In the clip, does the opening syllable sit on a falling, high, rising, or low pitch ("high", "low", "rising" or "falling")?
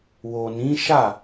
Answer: low